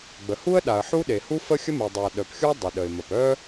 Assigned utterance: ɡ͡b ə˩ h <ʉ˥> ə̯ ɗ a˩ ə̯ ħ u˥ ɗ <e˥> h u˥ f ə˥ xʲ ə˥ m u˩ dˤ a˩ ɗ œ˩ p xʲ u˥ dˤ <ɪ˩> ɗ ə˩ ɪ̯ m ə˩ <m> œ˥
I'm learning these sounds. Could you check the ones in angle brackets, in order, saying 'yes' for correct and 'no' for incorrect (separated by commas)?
no, no, no, no